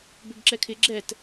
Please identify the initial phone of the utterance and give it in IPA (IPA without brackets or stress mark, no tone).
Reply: b